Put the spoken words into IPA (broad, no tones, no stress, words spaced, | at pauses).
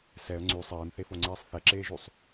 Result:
sɛə̯ ŋ͡ǀy sˤeːmθefoŋ͡ǀeːsˤ θɛǁeːʒysˤ